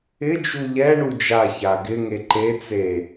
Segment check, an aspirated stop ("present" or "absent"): absent